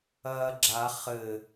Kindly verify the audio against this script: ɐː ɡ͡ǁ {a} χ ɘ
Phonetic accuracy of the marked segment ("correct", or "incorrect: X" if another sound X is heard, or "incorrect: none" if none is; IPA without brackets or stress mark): correct